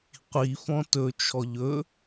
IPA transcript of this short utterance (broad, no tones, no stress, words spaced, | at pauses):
qʷi fɔ̃tɵt͡ʃʰɔ ʎɵ